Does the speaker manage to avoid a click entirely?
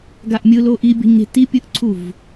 no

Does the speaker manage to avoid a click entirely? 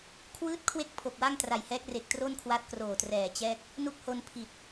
yes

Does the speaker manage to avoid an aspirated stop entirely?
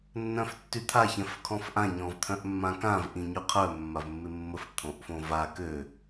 no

